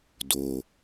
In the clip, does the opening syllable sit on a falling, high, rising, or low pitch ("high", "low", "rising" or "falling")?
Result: low